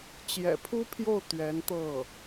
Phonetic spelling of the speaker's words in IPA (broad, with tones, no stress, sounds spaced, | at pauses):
t͡ɕ j ɛ̰˨˩ pʰ u˥ pʰ j o˥˩ ʊ̯ t̪ ɥ ɛ˧˥ n t̪ ɤ˥˩